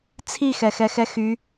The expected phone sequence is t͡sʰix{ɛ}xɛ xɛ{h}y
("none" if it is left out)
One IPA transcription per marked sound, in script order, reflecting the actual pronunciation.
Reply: ɛ, x

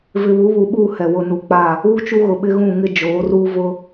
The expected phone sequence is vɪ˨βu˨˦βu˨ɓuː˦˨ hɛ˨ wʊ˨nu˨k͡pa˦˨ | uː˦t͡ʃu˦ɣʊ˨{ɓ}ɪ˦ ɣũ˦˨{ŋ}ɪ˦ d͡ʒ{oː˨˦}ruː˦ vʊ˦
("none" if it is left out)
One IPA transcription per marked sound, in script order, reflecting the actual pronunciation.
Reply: ɓ, ŋ, oː˨˦

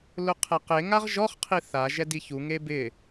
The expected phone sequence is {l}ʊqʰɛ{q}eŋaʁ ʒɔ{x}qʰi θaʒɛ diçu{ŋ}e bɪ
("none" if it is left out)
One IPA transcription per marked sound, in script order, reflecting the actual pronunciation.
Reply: l, q, χ, ŋ

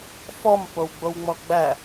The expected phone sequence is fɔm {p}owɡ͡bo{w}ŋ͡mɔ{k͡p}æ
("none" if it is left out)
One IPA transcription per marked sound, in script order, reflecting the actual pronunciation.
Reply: p, w, ɡ͡b

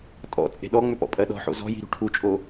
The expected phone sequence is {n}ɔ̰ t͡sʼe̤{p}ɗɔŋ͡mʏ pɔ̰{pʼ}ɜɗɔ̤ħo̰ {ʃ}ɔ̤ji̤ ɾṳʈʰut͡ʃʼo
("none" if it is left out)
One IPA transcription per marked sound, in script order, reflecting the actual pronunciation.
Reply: tʼ, none, pʼ, z

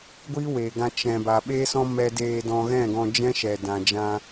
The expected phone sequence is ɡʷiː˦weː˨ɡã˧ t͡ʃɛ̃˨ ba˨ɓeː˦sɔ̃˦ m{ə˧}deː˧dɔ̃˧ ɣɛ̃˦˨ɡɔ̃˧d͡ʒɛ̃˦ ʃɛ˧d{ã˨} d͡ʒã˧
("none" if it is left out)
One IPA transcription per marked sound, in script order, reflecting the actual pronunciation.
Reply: ɛ˧, ã˧

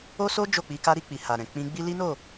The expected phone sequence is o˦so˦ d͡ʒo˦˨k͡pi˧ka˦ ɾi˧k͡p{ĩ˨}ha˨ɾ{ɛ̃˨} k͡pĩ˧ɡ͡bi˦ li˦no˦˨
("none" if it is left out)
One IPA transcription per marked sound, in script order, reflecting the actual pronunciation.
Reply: i˨, ɛ̃˨

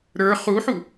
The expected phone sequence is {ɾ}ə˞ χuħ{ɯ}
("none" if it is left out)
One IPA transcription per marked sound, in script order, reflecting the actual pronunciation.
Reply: ɾ, u

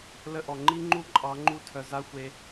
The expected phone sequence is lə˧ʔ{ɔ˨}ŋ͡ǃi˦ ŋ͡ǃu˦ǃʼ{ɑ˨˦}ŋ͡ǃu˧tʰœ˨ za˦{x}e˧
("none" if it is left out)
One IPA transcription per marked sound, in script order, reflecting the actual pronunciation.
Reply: ɔ˨, ɑ˨˦, xʷ

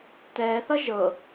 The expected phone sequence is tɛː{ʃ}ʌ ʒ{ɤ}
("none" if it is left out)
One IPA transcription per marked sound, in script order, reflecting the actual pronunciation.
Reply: θ, ɤ

